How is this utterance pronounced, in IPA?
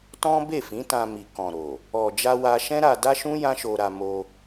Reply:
t ɔ̃˦ b e˦˨ f ĩ˨˦ t ã˧ m i˨ k ɔ̃˨ ɾ o˨ | ɔ˨ d͡ʒ a˧ w a˧ ʃ ɛ̃˦ ɾ a˧ d a˦ ʃ ũ˦ j ã˦ ʃ o˧ ɾ a˧ m o˧

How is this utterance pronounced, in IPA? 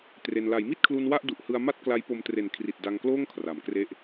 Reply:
t r e˧ n l a˩˦ j m i˥˩ t̚ kʰ l u˧ n w a˥˩ ʔ d u˨˩ ʔ h ɯ˧ a̯ m a˥˩ t̚ k l a˦˥ j p o˧ m t r e˨˩ n kʰ r i˨˩ t̚ d a˧ ŋ k l oː˥˩ ŋ kʰ r a˩˦ m k r e˥˩ ʔ

